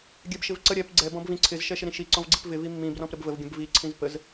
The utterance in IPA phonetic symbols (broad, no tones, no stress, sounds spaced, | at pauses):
ɡʲ ɛ b ʃ ɪ v ǀ ə ɾʲ ɛ p ɡ͡ǀ ɛ b ɔ̃ b v ĩ ǀʰ ɪ z ʃ ɛ ʃ ɪ ɾ ĩ ʃ i ǀ ɔ̃ v ɡ͡ǀ i p v ɪ v i mː ĩ b r ɔ̃ p ɾ ə b v ə v ɡʲ ə̃ b v i ǀʰ ĩ z p ə z